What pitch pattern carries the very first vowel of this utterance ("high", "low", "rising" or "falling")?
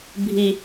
low